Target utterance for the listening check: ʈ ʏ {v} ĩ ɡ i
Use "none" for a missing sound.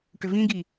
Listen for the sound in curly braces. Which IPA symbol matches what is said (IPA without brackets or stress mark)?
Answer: v